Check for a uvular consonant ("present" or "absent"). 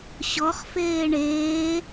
present